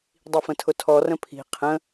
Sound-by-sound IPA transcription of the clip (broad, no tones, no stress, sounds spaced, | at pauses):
dˤ i f ə̃ tʰ ʊ tʰ ɔ r ə̃ pʰ i̤ qʰ ə̃